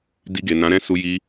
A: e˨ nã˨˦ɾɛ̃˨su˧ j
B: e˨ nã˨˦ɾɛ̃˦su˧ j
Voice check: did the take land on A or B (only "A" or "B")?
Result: B